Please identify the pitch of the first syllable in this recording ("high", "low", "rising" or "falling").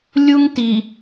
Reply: high